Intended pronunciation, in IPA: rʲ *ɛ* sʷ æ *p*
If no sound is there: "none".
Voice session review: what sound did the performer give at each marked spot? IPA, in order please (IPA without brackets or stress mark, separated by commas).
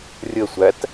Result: ə, t